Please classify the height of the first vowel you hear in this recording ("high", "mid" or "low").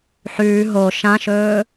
high